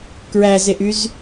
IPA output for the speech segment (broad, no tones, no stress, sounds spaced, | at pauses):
k ɹ æ z e ʔ y z